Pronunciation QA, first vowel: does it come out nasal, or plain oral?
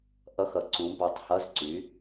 oral